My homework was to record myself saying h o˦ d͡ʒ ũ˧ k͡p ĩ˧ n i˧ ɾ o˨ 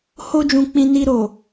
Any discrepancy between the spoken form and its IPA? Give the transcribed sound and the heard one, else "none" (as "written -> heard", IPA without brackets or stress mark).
none